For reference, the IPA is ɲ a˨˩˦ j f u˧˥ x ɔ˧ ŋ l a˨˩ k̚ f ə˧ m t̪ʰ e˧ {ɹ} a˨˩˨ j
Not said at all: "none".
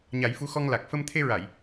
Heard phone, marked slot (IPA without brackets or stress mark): ɹ